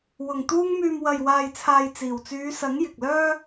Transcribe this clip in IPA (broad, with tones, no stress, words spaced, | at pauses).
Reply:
wʊ˨˩ŋt̪uː˧ŋmyː˨m wɐ˨jwaː˨jt͡sʰaː˨j t͡siː˨˩wt͡syː˨˧sɐ˨˥ŋ jɪ˨k̚lœː˥